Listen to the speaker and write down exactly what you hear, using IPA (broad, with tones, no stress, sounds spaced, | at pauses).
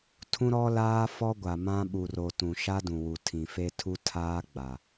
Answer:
tʰ ũ˦ ɾ ɔ˦ l aː˦ f ɔ˦ ɡʷ a˨ m ã˦ ɓ u˨ r o˨ t ũ˨ ʃ a˦ d ũ˨ w u˨ tʰ ĩ˨ f e˦ tʰ u˦ tʰ aː˦ ɡ͡b a˨